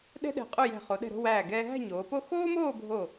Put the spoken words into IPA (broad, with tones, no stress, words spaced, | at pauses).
ɗɛ̤˥ɗɛ̤˧˩ qʼo˥˧jɛ̤˧˩ χo˩˧ɗɛ̤˧˩ɾo̤˥˧ wæː˧˩ ɡɛː˧ɦæ̤˥˧ ɲoː˩˧po˥˧ xoː˥moː˥˧ bʱo˧˩